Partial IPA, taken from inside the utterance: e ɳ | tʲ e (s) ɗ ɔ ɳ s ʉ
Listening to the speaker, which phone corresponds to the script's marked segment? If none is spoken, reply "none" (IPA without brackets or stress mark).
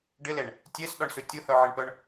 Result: s